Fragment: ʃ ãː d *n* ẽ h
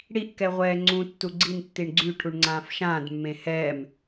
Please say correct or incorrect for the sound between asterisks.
incorrect